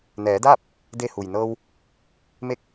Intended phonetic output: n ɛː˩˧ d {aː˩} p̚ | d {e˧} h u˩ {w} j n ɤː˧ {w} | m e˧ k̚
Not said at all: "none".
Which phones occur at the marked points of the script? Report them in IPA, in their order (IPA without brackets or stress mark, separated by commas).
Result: aː˥˨, e˧, none, w